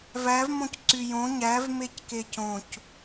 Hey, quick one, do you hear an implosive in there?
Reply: no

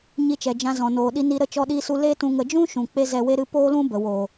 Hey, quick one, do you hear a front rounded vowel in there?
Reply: no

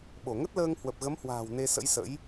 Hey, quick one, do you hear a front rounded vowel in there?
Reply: no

